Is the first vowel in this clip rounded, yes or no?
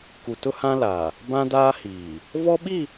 yes